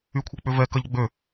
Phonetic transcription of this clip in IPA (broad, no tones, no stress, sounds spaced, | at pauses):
y kʷʰ e k͡p ʏ v ɛ k ɐ ʎ ɡ͡b ø